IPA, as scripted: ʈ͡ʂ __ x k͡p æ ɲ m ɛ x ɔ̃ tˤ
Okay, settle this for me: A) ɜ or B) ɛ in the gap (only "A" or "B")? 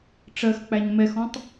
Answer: A